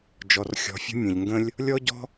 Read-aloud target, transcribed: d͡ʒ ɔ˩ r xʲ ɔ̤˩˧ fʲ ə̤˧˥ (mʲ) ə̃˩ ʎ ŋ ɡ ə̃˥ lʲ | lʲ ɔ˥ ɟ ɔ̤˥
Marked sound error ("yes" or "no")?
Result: no